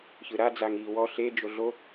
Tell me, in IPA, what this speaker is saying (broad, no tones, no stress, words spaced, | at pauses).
çɯɾa d͡zaŋiːwɔ ɬe d͡ʒoɮo